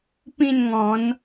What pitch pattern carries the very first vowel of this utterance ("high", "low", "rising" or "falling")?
falling